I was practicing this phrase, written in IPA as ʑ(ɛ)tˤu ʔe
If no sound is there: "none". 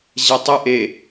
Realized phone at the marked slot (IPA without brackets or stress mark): ɛ